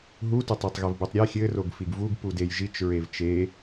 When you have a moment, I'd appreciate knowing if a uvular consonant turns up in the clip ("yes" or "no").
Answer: no